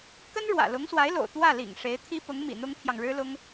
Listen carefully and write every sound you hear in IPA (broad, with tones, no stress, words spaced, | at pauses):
kə˥nɻwä̰˨˩ lʊ˧˥ŋswa˧˥ɪ̯lo̰˨˩ʊ̯ t̪wä˥˩lḭ˨˩ŋ ʂe˧˥ɪ̯ t̪ʰi˥ pʊ˧˥ŋmḭ˨˩ n̪ʊ˥ŋt̪ʰjɑ˨ŋɻɻ̩˥lʊ˥ŋ